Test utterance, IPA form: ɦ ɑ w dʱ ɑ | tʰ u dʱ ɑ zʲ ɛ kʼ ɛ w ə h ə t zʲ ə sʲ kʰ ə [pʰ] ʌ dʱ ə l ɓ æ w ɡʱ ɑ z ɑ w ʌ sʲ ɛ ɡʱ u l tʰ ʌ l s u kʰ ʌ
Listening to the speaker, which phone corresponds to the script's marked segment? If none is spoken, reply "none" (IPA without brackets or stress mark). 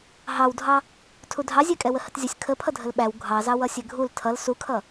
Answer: pʰ